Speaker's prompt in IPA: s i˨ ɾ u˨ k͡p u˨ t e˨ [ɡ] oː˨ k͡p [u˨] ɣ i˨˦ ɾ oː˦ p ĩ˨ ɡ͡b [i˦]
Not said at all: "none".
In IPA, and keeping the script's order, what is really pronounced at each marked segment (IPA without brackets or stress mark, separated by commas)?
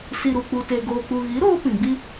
ɡ, u˨, i˦